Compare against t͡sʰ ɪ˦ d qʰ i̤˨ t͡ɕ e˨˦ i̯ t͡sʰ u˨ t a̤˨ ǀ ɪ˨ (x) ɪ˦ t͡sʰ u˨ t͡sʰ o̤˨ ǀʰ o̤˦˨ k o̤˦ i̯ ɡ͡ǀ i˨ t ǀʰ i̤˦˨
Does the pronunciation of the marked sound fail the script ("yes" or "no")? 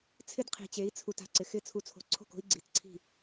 no